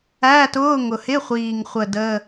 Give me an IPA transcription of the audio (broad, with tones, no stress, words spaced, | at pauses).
æː˧˥˧tʊː˧˥˧ŋʊ˨˩ hɪ˧˥˧χʷiː˨˩ŋχʷə˨˩ də˧˥˧